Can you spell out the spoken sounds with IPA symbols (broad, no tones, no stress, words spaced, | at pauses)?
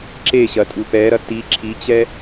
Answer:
ǁeɕɐ tʼupɛɾɐ ti ǁʰit͡ɕɛ